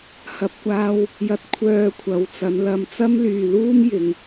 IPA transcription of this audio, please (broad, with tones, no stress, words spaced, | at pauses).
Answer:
hɐ˨p̚kʷaː˧w | jɐ˨˥t̚kʷʰœː˨ kʷʰɐ˨˧wt͡sɐ˨˧nlɐ˧m t͡sɐ˥mlyː˨luː˥mjɪ˨˧ŋ